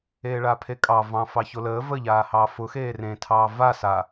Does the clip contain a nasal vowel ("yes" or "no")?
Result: yes